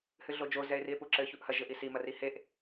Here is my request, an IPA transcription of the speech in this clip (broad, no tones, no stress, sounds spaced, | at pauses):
h ɨ ɮ o d͡ʒ o z ɛ e̯ r i e̯ p u ǁ ɘ ç u ʔ h ɐ ʒ ɘ ʔ i s i m ɐ r i h e ʔ